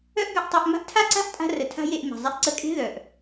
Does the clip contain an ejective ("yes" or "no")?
yes